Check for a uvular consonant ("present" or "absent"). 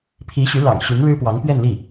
absent